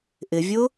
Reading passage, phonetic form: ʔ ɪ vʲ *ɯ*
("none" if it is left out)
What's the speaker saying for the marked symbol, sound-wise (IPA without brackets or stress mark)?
ʊ